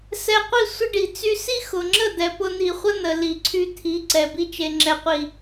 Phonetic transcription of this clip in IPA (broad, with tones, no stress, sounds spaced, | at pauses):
s ɛ˧ qʷ i˦˨ sʷ ə˦ ɖ i˨ t͡s y˦ s i˦ x ʊ˨ ŋ͡ǁ ə˦˨ d̪ ɛ˨ p ʊ˧ n̪ i˨ χʷ ə˦ n̪ ə˨ l i˨ ǀʰ y˧ t̪ʰ i˨˦ ǀ ɛ˨ b i˦ t͡ʃ e˧ ŋ͡ǁ ɛ˨ qʷ i˨